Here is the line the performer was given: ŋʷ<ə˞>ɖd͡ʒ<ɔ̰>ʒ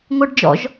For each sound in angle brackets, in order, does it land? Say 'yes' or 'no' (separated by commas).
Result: yes, yes